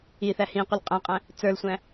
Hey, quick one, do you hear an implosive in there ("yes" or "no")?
no